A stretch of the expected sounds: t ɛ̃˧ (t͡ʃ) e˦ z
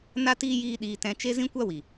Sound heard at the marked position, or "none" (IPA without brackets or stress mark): t͡ʃ